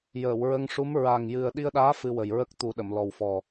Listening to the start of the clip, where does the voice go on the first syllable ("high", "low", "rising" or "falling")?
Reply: low